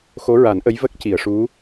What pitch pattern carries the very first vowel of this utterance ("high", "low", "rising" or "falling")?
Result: rising